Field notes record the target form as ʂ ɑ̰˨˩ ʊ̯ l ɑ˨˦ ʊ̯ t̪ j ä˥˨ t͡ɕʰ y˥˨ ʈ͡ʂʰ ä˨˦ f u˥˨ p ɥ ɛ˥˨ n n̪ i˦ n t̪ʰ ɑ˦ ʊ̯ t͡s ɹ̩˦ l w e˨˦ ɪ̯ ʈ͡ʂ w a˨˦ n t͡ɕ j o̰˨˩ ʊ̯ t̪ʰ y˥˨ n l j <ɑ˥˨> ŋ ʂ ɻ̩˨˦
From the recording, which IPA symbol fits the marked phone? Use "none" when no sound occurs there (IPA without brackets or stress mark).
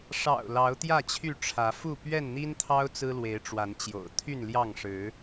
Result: ɑ˥˨